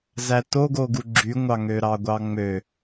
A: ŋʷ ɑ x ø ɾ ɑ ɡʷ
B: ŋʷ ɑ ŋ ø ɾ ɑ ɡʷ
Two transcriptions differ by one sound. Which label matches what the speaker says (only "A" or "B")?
B